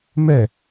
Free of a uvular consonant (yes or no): yes